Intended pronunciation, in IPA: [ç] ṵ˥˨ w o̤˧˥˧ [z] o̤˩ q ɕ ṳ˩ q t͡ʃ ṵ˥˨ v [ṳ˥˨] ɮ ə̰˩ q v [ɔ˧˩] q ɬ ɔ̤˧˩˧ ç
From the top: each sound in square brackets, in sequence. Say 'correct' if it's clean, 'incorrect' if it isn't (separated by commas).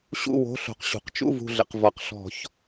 incorrect, incorrect, incorrect, incorrect